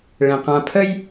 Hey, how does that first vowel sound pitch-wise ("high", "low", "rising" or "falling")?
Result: low